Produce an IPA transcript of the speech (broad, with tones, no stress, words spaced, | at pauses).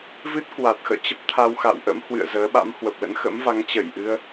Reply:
vɨ˦˥t̚kwa˨˩t̚xə̰ː˧˨ t͡ɕə˦˥p̚t̪ʰa˧wxa̰˧˨wʔə̰˧˥m hwɨ̰˧˨ə̯zəː˨˦ ɓa̰˧˥mhwə˨˩p̚lə̰˧˥n xə̰˧˥mva˨˦ŋt͡ɕə˧˩jʔɨ˧ə̯